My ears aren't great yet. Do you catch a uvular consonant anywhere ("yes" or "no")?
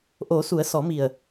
no